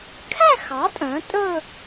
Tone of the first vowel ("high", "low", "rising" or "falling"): falling